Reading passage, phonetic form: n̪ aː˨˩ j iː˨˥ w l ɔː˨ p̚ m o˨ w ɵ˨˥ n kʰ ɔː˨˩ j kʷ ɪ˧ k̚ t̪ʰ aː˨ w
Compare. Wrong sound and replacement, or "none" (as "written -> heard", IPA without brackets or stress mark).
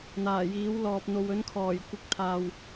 m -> n̪